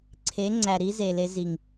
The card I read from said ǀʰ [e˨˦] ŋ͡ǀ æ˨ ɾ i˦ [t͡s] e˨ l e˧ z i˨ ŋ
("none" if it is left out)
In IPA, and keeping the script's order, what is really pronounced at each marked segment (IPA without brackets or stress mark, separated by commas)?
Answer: e˨˦, z